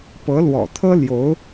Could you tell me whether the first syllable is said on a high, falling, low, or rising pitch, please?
rising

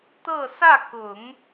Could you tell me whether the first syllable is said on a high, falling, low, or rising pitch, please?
falling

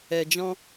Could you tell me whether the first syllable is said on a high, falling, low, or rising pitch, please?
low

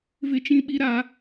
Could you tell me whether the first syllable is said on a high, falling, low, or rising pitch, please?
high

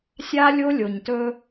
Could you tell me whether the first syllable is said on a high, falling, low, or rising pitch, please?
high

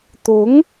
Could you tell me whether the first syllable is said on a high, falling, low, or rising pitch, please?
rising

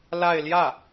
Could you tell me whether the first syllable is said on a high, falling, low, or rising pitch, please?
falling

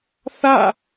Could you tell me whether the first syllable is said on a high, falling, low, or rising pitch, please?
falling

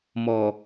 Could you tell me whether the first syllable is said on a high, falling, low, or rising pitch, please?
low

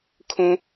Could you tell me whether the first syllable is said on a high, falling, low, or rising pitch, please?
low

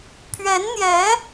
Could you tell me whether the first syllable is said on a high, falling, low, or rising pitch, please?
rising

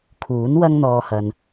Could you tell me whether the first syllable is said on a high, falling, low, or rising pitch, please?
rising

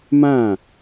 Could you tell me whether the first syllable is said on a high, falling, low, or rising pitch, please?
falling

